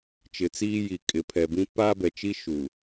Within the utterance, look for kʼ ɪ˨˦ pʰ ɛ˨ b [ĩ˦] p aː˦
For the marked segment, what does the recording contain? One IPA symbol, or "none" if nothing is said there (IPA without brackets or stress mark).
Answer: ĩ˦